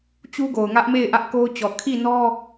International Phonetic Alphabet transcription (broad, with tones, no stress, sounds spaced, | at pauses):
t͡ɕ u˦ ɡ o˨ ʊ̯ ŋ ä˦ ʔ m e˦˨ ɪ̯ ʔ ä˦ ʔ k o˦ ʊ̯ t͡ɕ ɔ˨ kʰ i˦˨ n ɔ˦